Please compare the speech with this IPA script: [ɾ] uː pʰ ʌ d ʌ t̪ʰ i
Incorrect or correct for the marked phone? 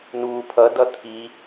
incorrect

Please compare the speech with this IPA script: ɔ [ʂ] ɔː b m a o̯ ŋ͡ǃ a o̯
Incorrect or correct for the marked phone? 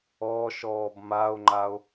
incorrect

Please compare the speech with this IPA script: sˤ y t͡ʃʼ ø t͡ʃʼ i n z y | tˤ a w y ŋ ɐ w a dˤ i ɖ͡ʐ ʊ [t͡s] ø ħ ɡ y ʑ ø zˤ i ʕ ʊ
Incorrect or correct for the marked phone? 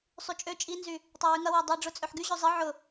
incorrect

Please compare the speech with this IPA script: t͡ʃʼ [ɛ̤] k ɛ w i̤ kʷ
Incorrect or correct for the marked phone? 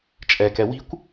incorrect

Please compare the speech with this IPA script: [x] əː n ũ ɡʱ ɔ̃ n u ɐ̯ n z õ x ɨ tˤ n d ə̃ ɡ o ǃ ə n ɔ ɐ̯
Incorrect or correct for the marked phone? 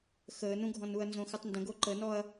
correct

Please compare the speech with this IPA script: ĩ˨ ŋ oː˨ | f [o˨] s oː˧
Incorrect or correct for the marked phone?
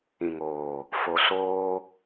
correct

